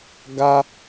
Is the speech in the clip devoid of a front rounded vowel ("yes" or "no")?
yes